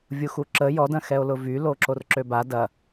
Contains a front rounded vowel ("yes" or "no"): yes